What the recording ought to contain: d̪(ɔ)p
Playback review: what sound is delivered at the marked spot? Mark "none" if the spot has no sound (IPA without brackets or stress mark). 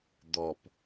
ɔ